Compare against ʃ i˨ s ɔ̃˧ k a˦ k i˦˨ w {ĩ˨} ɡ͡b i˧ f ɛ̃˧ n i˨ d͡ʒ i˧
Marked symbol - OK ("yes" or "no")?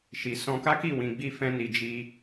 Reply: yes